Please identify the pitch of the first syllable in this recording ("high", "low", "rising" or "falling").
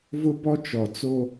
high